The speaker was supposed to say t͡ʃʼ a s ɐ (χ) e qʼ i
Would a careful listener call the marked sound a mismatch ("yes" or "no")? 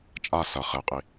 no